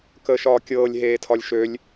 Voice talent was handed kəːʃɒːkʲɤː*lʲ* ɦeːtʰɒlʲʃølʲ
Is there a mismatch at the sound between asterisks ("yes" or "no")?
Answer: no